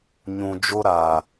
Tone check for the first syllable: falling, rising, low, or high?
low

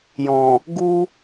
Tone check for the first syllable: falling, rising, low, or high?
low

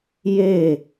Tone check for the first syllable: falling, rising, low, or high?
falling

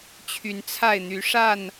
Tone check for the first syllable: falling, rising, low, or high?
rising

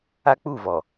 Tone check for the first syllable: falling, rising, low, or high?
high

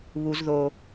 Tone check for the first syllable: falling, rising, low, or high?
high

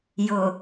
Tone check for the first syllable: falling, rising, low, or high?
low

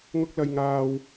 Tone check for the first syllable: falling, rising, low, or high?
high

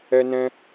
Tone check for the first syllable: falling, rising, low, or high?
high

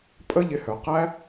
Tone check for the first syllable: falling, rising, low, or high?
high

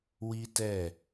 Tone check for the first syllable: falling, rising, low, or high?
high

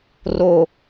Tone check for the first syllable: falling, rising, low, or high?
falling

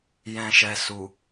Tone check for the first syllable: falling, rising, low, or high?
low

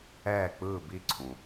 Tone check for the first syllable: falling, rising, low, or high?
falling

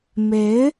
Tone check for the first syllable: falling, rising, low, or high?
rising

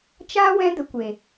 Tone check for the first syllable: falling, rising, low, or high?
high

